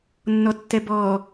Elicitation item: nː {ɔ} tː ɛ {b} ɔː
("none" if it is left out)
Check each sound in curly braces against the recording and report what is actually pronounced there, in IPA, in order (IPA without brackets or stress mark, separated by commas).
ɔ, b